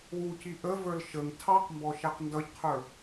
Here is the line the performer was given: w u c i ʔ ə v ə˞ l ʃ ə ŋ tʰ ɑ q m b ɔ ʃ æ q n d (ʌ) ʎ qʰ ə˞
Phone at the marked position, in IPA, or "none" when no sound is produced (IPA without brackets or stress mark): ʌ